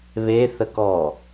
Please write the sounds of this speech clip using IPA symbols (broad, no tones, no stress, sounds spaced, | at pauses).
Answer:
β e θ ə k ɔː